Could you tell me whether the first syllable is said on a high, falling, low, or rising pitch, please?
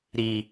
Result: low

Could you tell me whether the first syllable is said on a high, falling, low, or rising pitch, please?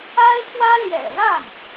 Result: high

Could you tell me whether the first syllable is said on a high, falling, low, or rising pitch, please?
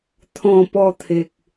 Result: falling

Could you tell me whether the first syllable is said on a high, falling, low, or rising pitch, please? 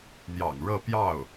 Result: low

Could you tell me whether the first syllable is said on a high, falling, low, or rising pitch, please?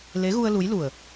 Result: rising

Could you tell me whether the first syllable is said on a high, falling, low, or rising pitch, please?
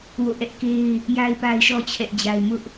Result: falling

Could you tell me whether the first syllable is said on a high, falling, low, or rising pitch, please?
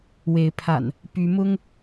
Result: rising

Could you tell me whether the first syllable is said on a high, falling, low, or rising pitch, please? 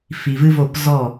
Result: low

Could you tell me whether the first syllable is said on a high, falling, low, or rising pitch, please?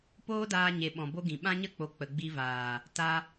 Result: high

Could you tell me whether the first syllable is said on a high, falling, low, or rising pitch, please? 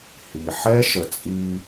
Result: low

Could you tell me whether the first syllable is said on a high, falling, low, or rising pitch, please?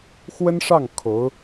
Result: high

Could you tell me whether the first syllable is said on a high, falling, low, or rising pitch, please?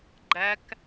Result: rising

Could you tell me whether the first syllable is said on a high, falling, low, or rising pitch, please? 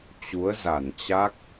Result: rising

